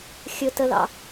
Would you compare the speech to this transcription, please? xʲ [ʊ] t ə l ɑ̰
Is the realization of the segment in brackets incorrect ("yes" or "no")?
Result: no